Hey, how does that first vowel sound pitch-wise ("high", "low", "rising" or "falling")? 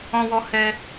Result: high